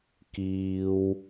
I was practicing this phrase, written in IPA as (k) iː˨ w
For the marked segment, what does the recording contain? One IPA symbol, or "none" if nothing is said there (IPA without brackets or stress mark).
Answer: k